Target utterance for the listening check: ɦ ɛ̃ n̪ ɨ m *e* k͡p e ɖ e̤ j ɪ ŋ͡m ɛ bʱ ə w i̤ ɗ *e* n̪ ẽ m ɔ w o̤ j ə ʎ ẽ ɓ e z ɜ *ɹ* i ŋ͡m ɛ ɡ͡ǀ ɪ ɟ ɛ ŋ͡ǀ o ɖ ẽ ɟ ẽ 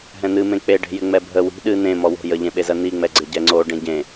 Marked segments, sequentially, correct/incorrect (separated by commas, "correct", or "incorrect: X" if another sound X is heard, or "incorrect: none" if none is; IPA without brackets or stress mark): incorrect: ẽ, incorrect: ɨ, incorrect: n̪